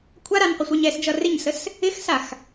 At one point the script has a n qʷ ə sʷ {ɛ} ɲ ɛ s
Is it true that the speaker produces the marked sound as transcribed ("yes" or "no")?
yes